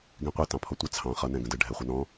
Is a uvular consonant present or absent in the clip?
present